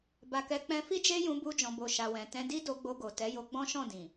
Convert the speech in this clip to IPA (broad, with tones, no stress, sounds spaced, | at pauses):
b a˨ k ɛ˨˦ k͡p ɛ̃˧ f i˦ d͡ʒ e˦ j ũ˧ b u˧ d͡ʒ ɔ̃˨ b o˨ ʃ a˨ w ɛ̃˨ t ɛ̃˧ d i˦ d o˧ ɡ͡b o˧ ɡ o˨ t ɛ˨˦ j o˧ ɡ͡b ɔ̃˦ ʃ ɔ̃˦˨ d ĩ˨